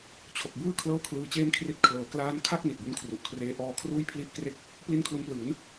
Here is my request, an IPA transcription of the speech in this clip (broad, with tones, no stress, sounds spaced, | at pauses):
t͡ɕʰ o˨˩ k̚ b ɯː˥˩ kʰ l ɤː˥˩ kʰ l ɯː˧ t͡ɕ eː˥˩ m kʰ r i˦˥ t̚ kʰ l ɤː˩˦ k l aː˦˥ n kʰ a˥˩ k̚ n i˨˩ t̚ b u˦˥ n kʰ r u˨˩ ʔ kʰ r eː˦˥ ʔ ɔː˧ kʰ r uː˥˩ j pʰ l i˥˩ ʔ k r e˥˩ k̚ | p l i˥˩ n kʰ l u˦˥ n p l ɯː˩˦ n